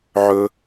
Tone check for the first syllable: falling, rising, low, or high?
high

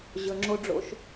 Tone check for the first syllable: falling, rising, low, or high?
low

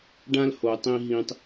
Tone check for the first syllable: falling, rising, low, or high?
high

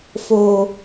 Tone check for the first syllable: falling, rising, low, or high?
low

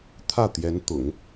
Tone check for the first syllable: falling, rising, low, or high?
falling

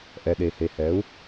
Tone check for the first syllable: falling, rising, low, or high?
low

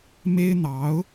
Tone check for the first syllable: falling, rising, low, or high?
high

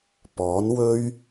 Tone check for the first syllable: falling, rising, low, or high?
rising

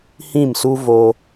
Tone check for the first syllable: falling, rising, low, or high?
falling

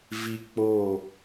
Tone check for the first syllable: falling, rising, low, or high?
high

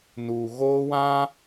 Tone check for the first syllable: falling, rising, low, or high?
low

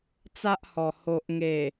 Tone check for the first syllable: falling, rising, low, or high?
high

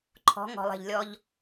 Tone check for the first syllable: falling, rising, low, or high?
rising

